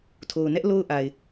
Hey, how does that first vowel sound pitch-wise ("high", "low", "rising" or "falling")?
low